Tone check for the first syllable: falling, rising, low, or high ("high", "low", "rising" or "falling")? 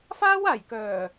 high